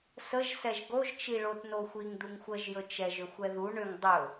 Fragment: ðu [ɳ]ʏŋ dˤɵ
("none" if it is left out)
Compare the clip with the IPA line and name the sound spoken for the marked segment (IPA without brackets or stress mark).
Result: ɳ